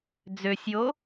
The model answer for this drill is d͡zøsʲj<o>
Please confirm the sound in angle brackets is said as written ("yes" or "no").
yes